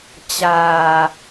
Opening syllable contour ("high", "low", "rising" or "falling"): low